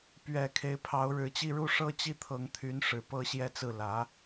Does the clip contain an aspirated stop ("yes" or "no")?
yes